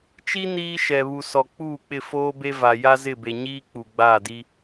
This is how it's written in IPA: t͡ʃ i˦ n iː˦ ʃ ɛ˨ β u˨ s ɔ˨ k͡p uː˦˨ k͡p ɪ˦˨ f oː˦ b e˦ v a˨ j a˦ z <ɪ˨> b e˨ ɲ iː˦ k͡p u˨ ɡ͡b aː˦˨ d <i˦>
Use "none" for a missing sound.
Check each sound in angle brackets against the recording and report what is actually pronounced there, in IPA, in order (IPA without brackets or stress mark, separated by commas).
ɪ˦˨, i˦